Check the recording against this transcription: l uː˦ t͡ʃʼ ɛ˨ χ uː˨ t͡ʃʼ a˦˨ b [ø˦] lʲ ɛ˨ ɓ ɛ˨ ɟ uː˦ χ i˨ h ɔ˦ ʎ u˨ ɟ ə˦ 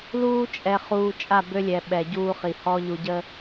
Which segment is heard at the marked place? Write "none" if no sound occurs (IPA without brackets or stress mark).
ø˦